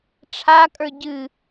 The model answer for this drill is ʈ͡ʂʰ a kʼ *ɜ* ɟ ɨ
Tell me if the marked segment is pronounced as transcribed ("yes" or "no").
no